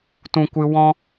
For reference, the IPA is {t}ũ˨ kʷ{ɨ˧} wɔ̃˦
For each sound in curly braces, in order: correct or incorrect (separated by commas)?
correct, correct